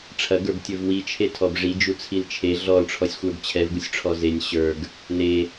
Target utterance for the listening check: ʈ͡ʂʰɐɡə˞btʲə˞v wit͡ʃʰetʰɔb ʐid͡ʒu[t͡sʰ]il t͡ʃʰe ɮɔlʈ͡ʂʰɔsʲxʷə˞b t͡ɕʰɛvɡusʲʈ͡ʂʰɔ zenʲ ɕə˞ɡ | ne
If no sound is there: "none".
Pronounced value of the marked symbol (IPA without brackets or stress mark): t͡sʰ